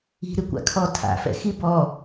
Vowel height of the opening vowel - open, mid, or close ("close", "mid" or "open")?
close